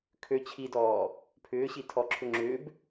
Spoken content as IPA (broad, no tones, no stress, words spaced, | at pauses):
kʰø t͡ɕʰidɔː | pʰʏːɕitʰɔǁʰʏ ŋ͡ǁʏːb